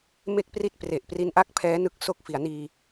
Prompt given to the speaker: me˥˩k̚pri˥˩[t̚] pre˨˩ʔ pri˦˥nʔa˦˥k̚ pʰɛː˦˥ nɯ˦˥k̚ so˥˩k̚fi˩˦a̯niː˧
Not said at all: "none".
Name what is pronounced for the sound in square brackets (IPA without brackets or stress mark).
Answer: t̚